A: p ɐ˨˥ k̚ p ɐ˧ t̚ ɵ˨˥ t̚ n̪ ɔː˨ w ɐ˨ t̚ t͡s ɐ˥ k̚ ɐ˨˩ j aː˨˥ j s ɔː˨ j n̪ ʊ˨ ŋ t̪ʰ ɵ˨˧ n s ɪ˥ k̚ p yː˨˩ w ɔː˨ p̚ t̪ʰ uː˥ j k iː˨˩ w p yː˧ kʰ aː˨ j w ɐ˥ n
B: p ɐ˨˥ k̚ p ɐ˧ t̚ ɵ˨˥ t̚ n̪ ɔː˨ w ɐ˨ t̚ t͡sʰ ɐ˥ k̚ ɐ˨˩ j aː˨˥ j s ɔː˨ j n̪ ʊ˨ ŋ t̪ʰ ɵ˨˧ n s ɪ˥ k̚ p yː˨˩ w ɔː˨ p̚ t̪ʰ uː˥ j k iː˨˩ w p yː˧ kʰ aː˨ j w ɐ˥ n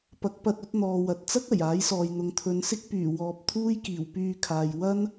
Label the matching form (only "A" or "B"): A